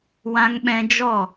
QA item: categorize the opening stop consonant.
implosive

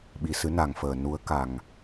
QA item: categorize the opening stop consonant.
implosive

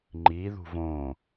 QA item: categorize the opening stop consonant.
click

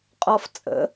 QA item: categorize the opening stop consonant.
ejective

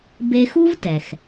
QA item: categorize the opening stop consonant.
plain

